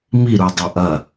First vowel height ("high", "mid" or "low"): high